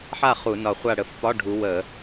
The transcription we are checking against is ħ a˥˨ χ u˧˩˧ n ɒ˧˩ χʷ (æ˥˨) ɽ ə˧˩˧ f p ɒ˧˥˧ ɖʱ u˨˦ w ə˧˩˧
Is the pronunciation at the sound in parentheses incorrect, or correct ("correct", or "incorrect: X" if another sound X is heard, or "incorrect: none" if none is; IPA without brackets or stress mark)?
incorrect: a˥˨